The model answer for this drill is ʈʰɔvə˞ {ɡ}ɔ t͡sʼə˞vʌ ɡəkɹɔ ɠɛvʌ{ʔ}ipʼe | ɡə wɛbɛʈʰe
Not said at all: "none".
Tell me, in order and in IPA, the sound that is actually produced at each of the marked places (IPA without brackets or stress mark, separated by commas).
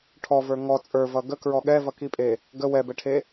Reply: ŋ, k